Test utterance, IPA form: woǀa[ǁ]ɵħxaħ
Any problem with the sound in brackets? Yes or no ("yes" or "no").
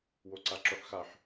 no